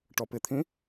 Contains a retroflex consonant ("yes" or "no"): yes